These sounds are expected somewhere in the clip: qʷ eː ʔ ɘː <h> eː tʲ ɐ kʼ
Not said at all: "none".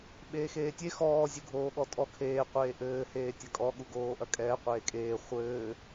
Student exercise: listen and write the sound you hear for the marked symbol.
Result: h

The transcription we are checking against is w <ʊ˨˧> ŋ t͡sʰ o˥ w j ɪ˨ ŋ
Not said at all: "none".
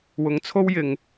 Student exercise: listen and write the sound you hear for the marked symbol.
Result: ʊ˨˧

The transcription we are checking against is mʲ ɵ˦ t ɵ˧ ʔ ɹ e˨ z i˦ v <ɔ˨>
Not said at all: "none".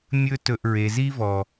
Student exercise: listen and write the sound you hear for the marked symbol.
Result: ɔ˨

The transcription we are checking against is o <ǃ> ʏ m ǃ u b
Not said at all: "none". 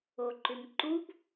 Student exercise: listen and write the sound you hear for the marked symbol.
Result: ǃ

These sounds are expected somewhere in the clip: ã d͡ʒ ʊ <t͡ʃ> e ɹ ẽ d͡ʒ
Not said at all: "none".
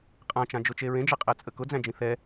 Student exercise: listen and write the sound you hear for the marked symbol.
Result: t͡ʃ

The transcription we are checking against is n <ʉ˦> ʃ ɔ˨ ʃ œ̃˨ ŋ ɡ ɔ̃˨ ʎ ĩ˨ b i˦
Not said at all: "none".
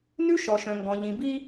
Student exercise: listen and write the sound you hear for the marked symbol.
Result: ʉ˦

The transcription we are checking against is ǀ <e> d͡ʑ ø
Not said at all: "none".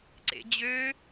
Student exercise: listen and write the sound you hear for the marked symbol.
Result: ḛ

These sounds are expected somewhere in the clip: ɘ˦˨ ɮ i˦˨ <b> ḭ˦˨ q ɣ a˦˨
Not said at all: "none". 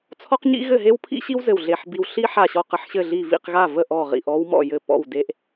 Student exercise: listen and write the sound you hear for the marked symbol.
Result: v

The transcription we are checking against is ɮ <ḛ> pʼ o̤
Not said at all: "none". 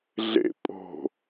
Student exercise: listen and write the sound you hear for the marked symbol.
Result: ḛ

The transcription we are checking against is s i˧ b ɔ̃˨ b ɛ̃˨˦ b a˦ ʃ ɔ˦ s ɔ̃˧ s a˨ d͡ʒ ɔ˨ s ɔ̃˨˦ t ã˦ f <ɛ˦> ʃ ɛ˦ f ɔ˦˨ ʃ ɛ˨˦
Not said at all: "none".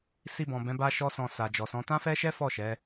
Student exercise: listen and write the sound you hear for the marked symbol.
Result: ɛ˦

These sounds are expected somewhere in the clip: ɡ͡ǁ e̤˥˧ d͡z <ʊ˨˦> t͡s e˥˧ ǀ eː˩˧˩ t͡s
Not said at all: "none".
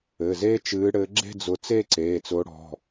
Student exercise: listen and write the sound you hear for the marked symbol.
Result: ʊ˨˦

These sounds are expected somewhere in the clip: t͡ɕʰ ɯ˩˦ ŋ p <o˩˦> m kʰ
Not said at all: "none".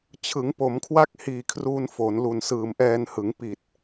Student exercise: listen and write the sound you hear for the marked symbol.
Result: o˩˦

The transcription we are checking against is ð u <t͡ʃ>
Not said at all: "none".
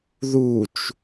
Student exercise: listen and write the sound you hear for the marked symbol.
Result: t͡ʃ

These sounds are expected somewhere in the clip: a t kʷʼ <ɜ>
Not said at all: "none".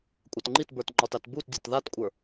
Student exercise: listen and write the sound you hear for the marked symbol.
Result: ə˞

